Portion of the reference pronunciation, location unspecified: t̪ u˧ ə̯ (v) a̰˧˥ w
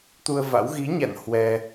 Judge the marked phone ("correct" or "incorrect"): correct